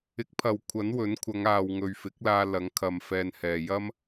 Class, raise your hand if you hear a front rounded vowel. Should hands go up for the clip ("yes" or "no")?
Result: no